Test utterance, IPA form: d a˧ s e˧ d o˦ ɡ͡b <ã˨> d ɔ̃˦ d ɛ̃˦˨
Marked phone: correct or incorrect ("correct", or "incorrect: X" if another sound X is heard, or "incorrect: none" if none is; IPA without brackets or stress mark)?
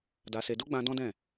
incorrect: ã˧